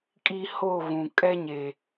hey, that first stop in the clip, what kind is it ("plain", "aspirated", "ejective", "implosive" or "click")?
ejective